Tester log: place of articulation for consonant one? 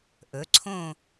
glottal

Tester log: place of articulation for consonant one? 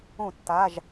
alveolar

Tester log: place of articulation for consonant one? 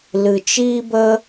alveolar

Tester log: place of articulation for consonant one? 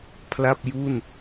labial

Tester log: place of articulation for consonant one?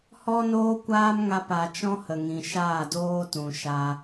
glottal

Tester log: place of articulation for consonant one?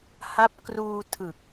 glottal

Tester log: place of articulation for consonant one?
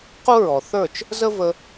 uvular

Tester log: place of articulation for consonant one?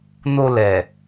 alveolar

